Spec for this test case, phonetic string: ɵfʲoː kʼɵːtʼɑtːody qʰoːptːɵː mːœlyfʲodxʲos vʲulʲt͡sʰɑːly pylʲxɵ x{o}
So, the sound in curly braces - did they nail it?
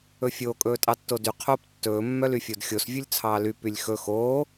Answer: no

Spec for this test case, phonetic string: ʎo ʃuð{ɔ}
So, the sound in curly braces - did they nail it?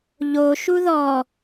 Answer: yes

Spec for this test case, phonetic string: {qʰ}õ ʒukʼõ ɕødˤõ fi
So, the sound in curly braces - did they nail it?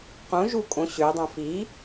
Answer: no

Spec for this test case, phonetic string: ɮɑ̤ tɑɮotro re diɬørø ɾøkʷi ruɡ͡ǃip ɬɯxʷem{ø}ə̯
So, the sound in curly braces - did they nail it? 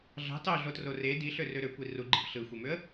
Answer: yes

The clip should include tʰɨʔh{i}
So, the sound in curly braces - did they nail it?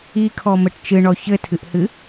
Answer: no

